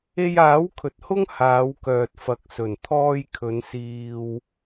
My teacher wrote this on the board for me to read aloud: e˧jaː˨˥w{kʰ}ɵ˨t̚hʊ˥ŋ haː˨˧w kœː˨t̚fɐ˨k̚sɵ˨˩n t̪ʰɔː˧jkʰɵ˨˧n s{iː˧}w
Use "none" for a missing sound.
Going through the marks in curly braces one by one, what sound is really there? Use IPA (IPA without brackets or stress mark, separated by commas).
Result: kʰ, iː˧